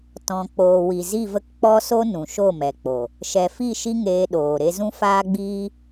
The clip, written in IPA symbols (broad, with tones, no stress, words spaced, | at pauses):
tɔ̃˨ k͡poː˨wi˨ zi˦˨və˦k k͡pɔ˦so˦ nũ˨ʃo˦˨mɛ˨k͡po˨ | ʃɛ˨fi˦˨ ʃi˦ŋeː˧ɗoː˨ ɾe˧zũ˦faː˦ɡ͡biː˦